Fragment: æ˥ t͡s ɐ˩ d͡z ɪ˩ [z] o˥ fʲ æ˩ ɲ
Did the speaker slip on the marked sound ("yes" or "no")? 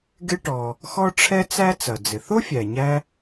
yes